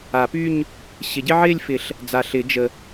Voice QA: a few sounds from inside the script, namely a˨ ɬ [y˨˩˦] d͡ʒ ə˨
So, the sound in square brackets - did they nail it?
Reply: no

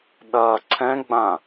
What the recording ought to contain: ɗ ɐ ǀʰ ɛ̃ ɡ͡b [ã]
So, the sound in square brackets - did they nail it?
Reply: yes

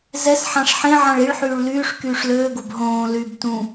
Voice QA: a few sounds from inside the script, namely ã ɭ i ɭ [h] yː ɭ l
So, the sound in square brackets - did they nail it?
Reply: no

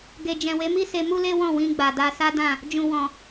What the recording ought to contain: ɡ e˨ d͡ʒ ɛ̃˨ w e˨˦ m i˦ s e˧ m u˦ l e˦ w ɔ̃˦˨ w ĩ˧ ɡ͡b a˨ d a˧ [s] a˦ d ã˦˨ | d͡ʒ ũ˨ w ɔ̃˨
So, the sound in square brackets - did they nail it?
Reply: yes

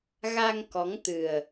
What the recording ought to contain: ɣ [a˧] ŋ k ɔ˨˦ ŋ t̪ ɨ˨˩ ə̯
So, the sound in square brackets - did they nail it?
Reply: yes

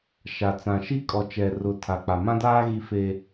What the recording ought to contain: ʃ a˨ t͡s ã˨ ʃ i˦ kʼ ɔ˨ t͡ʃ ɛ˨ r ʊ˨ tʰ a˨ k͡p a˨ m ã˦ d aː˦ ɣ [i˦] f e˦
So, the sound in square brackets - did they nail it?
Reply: yes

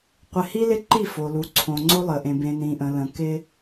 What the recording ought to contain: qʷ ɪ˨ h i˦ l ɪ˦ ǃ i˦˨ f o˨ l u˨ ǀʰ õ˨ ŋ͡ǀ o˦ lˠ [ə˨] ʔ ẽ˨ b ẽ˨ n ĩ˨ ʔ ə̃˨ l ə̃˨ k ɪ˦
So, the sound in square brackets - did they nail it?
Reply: yes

